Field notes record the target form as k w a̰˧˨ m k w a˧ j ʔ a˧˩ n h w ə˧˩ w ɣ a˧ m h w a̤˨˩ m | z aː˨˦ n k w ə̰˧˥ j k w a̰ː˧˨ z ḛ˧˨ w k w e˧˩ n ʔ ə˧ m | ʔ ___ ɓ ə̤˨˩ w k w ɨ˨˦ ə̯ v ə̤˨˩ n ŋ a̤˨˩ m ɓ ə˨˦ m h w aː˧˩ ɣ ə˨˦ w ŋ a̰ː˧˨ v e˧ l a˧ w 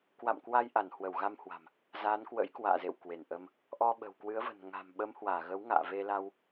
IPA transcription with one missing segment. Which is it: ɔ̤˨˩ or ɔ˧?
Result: ɔ˧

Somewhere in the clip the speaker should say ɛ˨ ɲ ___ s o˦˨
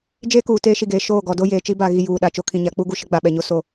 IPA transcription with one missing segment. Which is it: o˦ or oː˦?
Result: o˦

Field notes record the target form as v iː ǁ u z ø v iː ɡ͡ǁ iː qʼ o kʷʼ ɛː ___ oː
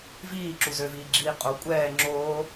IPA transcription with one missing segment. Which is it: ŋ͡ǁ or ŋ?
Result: ŋ͡ǁ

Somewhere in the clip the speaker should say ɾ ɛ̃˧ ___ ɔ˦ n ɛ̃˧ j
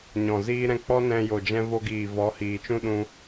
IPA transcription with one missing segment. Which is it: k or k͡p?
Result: k͡p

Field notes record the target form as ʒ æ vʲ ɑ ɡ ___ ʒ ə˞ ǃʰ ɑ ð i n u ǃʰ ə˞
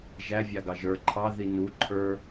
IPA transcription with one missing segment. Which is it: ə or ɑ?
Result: ɑ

